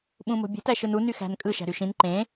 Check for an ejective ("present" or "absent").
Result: present